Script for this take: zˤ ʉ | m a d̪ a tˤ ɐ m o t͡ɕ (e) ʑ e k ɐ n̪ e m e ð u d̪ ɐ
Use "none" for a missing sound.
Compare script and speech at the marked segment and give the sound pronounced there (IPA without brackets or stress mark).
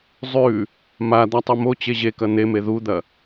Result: e